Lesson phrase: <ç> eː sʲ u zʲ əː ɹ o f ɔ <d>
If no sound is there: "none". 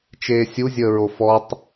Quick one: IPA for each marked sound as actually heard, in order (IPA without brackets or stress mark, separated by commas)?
t͡ʃ, tˤ